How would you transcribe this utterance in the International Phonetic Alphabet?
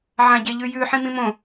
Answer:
ʕ ã ɟ e ʎ ʉ j ʉ ħ ĩ m ĩ m õ

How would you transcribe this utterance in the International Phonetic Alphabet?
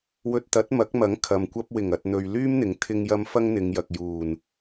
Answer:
w ɵ˧ t̚ t̪ ɐ˨˥ t̚ m ɐ˨˥ k̚ m ɐ˨˥ ŋ kʰ ɐ˨ m kʷ ɐ˥ p̚ w ɪ˨˩ ŋ ɐ˨ t̚ n̪ ɵ˨ ɥ l yː˥ m n̪ ɪ˨˥ ŋ t̪ʰ ɪ˧ ŋ j ɐ˧ m f ɐ˥ ŋ n̪ ɪ˨˧ ŋ j ɐ˨ k̚ j uː˨˩ n

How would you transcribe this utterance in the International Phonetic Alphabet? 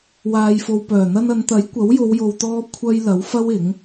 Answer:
w aː˨ j f o˨ w p œː˨˩ n̪ ɐ˧ n ɐ˨˧ n t̪ ɐ˨˥ j kʷ ɐ˨˥ w j o˨˧ w j o˨ w t̪ ɔː˧ kʷʰ ɐ˧ j l ɐ˨˥ w f ɐ˥ w ɪ˨˥ ŋ

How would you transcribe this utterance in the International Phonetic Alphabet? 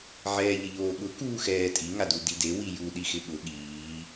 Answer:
ʕ ɛː ʎ ɪ ʎ oː ɠ ʊ k uː x ɛː tʼ i ŋ a d u d i d e w i j u ɗ i x ɪ ɠ ʊ ɠ iː

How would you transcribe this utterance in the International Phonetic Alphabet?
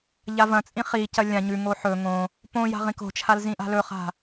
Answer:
ʎ a v ɐ̃ t͡sʼ ĩ χ i c ɐ lʲ ã ɲ ʉ ŋ o ħ ɵ ŋ õ | p õ j a̤ ʁ ĩ k o̤ t͡ʃʰ a l z ĩ ʔ a̤ l ɵ χ a̤

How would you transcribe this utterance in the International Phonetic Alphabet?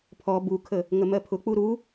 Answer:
pʰ ɔ b u kʰ ə | ŋ ə m ɜ pʰ ʊ k͡p u ɾ u

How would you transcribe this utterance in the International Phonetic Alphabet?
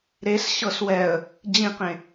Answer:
ɾ e s ɕ ɤ s w ɛ ə̯ | d͡ʑ ĩ q ẽ

